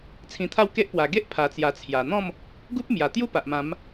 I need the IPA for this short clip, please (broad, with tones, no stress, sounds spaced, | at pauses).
t͡sʰ ĩ˧ t̪ʰ a˥˧ w k e˦ ʔ p w a˨˩ ɡ e˦ ʔ pʰ a˨˩ t͡s j a˨˩ t͡sʰ j a˨˩ n̪ ɔ̃˥˧ m | ɡ u˦ p̚ m j a˨˩ t̪ j u˦ p a˨ ʔ m ã˨˦ m